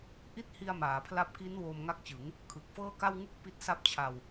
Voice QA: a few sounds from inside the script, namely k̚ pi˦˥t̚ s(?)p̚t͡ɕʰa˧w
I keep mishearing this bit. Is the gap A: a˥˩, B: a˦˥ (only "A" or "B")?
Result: B